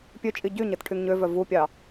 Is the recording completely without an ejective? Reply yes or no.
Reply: no